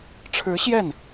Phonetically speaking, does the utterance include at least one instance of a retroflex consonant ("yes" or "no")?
yes